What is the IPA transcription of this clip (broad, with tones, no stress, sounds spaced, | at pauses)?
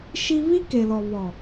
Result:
ʃ i˦ β i˦ k e˨ l ɔ˨ β ɔ˨